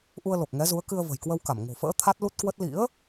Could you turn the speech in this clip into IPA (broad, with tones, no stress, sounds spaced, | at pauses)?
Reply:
ʔ u˧ ə̯ l o˨˩ k̚ ŋ ɛ˨˦ z u˨˦ ə̯ k ɨ˧ ə̯ v ə̤˨˩ j k w ə˧ w k a˧˩ m ŋ o̤˨˩ f ə̰ː˧˥ t̪ʰ a˦˥ t̚ l u˦˥ t̚ k w ə˦˥ t̚ l ḭ˧˥ ə̯